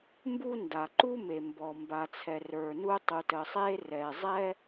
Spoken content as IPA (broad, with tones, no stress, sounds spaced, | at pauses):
m b u˥ n d a˩ ǃ u˥ m e˩ m b ɔ˩ m b a˩ t͡sʰ ɛ˩ r ə˞˩ n u˥ tˤ u˩ t ə˩ sˤ e˥ r ɛ˩ zˤ ɛ˥